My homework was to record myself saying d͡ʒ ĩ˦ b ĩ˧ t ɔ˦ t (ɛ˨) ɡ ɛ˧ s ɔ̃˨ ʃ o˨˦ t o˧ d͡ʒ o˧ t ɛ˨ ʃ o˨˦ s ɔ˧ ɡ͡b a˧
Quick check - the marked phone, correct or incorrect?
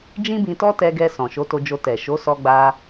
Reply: incorrect